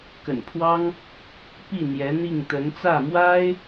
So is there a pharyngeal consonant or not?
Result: no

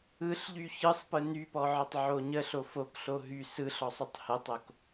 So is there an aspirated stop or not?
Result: no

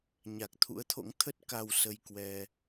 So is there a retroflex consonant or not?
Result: no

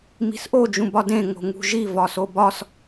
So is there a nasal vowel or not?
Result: yes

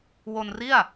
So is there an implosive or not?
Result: no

